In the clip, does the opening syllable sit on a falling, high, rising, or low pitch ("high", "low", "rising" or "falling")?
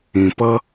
low